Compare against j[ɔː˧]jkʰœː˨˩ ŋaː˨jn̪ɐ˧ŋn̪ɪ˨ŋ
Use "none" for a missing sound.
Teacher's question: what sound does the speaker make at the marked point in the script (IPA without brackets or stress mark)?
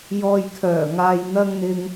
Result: ɔː˧